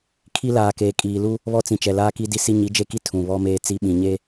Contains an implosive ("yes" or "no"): yes